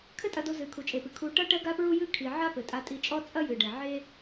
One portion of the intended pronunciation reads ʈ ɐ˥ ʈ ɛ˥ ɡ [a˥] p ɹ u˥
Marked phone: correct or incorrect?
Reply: correct